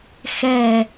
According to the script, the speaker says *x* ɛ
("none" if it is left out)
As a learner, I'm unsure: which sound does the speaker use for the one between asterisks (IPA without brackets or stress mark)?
x